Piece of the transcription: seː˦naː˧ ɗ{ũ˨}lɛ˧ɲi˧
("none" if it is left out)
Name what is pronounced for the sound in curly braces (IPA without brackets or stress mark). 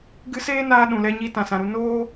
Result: ũ˨